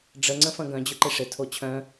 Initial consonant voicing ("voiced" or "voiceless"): voiced